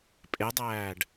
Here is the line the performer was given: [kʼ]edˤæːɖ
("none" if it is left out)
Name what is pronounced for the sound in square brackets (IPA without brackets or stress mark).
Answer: pʼ